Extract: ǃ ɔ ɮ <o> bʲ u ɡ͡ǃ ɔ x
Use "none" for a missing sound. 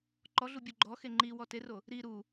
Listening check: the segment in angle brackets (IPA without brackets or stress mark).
u